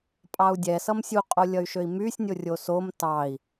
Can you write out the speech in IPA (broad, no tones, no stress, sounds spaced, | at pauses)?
pʼ ɑ u̯ dʲ ɛ s ʌ m sʲ u qʼ o lʲ ʌ y̯ ʃ ø i̯ m y sʲ nʲ o rʲ o s o m t ɑ i̯